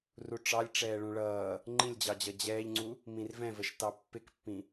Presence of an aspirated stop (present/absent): absent